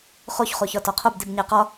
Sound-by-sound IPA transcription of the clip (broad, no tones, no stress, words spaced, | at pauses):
χoçχo çɒtɒqʰobdib ɲæqɒ